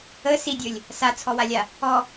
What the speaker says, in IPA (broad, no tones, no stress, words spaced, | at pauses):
ə sidʲɵlʲ | sat͡sʰɔwalʲa | ɔ